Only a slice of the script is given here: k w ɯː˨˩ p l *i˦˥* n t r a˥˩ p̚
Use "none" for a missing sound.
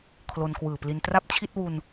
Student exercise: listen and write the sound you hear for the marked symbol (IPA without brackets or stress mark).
i˧